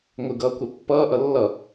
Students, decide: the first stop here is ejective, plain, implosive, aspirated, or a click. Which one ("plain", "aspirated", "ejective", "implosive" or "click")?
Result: plain